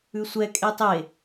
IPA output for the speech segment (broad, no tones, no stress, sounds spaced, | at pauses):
ʉ sʷ ɛ kʼ e tˤ e